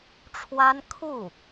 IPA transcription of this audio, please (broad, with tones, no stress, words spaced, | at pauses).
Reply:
ʈ͡ʂʰwa˥n kʰu˥˩